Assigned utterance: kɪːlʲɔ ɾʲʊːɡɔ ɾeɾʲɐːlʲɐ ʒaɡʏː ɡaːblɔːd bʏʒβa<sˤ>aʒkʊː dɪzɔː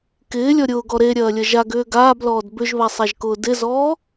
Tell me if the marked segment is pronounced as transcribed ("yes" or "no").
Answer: yes